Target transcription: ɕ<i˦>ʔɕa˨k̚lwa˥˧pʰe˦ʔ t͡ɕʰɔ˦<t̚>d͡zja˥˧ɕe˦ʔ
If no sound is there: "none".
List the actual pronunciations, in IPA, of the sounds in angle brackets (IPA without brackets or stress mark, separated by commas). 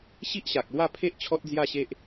i˦, t̚